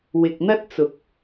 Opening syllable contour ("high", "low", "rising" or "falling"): low